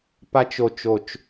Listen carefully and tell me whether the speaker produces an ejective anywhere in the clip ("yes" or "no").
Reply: no